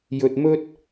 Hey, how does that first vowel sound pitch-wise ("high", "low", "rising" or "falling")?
low